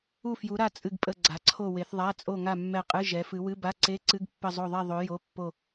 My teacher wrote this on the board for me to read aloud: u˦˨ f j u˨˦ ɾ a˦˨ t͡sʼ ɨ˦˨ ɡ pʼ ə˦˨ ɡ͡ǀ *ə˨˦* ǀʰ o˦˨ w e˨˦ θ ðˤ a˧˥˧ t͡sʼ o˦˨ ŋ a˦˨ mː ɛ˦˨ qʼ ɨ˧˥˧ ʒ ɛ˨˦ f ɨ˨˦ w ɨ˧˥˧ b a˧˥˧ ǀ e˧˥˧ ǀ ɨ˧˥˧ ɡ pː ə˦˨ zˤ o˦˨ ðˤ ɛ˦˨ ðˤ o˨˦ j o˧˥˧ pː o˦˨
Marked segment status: incorrect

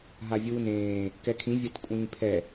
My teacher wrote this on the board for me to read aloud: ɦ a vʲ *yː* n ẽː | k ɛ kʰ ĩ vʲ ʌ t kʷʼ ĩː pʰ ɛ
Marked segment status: incorrect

